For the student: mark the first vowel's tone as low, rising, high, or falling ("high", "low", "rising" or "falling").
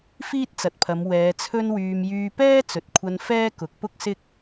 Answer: high